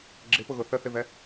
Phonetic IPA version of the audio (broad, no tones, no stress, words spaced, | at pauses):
ɡ͡ǁɪpʊɣʊ θəθɪvɛ